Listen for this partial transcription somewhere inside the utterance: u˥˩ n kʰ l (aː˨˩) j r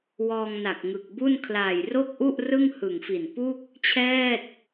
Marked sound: correct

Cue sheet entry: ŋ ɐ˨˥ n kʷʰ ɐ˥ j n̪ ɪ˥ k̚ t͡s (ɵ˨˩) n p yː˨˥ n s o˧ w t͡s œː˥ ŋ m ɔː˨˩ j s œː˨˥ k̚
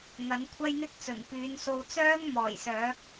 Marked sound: correct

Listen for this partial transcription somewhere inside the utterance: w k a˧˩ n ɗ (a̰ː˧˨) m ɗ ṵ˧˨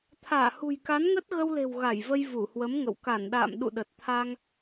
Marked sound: correct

